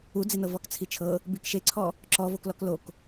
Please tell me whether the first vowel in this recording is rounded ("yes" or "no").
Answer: yes